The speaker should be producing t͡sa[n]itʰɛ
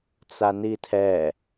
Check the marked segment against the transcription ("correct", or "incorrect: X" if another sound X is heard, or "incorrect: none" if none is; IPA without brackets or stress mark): correct